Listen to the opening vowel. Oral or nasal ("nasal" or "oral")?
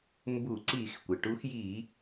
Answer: oral